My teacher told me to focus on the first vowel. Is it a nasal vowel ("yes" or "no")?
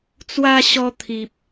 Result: no